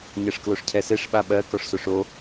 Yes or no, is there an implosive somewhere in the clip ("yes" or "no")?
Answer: yes